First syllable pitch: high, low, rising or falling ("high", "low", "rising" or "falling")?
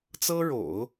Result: high